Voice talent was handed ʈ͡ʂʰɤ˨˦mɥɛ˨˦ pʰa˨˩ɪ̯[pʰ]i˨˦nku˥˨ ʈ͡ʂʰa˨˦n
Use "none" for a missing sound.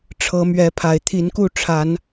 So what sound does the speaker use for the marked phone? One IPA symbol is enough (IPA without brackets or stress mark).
t̪ʰ